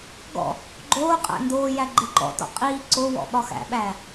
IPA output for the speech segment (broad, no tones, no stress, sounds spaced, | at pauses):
ɡ ɔ̰ | ɡ͡ǃ oː qʼ æ̰ n d oː j æ ɡ͡ǃ ɪ ǃ ɔ̰ t ɔ̰ qʼ iː ǀ o w ɔ̰ ɓ ɒ x æ̰ ɓ æː